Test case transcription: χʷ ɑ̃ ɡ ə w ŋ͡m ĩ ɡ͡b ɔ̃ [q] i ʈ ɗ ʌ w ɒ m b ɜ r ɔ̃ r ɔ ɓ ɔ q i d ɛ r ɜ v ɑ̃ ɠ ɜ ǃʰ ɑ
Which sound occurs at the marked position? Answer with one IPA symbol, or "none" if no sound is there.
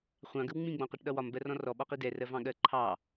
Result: q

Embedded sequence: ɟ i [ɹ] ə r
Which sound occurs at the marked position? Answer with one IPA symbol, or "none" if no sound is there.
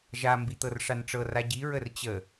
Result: ɹ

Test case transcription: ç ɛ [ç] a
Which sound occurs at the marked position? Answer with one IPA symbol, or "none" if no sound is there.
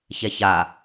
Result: ç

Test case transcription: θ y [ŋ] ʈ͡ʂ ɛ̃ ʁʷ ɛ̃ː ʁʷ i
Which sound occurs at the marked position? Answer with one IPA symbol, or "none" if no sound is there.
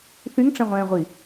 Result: ŋ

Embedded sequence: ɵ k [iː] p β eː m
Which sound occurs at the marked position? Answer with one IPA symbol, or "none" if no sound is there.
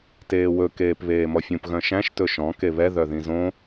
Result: eː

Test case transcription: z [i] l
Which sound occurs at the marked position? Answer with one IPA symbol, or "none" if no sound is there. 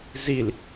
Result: i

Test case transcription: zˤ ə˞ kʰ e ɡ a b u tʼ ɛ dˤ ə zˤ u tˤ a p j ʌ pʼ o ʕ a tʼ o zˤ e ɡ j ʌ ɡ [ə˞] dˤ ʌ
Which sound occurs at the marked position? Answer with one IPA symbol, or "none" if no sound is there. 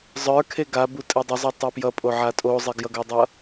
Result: ə˞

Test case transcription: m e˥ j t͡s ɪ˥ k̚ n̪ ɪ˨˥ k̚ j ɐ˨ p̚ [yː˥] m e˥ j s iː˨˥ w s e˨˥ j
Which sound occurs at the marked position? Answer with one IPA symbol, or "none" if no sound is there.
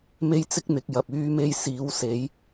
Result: yː˥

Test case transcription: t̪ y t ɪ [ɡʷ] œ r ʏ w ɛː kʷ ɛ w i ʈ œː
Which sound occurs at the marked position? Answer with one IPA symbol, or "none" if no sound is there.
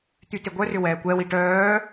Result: ɡʷ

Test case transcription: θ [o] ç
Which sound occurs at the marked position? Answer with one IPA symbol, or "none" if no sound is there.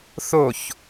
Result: o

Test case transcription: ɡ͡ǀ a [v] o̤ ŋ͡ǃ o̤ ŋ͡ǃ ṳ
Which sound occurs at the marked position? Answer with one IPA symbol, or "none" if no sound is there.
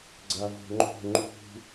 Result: v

